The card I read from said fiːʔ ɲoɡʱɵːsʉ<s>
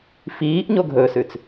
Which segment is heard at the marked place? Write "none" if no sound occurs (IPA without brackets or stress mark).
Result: t͡s